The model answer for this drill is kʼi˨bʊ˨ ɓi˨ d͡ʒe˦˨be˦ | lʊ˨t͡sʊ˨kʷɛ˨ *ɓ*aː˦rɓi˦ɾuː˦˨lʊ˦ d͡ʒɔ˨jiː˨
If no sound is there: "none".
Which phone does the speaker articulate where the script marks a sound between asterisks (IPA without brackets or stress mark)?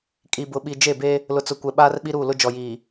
ɓ